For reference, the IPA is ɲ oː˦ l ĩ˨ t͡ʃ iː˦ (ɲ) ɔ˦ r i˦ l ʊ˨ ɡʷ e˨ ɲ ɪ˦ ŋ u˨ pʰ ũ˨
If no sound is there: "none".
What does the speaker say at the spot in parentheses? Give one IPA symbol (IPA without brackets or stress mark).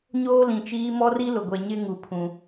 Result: m